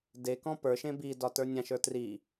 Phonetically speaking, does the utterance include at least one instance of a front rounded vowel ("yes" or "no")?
no